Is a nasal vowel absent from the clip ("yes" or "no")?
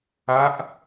yes